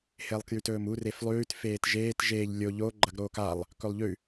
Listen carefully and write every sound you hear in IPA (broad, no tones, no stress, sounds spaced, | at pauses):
h e lˠ k j ʉ t ɵː m u r e f lˠ ʉː t f eː t ʒ eː t ʒ eː ʎ lʲ o ʎ o ɡ͡ǃ ɐ ɡ ɾ oː k a lˠ | k ɵ lˠ ʎ ʉ